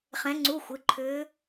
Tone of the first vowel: rising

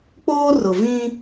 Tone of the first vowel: high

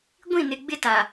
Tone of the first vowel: falling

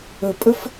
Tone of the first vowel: low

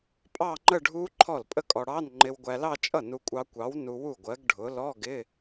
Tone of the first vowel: falling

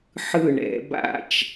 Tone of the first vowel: falling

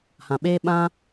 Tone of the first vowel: low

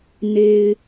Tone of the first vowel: low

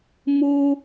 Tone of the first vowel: high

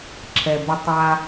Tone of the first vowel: low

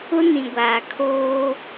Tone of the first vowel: high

